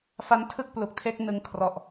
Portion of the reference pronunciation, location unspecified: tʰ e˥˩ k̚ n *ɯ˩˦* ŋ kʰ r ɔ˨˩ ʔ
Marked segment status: incorrect: ɯ˧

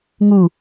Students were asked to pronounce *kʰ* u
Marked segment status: incorrect: ŋ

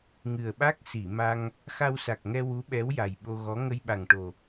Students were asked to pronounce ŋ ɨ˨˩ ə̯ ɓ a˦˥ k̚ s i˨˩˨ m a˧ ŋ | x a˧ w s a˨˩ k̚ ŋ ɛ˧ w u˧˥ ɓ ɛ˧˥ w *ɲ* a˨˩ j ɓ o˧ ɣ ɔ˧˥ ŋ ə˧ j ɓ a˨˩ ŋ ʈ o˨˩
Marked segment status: incorrect: j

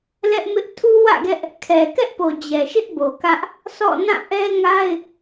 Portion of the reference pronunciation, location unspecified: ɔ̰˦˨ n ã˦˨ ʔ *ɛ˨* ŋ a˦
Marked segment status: incorrect: ɛ˦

